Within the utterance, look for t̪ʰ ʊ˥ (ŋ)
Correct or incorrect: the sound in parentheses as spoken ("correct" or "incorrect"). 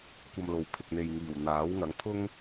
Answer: correct